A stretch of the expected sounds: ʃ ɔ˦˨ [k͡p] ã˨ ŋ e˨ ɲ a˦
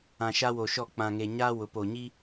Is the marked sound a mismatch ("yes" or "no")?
no